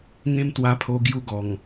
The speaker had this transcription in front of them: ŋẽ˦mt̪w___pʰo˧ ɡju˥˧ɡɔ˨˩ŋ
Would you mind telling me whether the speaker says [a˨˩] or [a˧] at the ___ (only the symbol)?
a˧